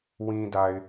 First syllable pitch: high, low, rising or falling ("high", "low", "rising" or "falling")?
low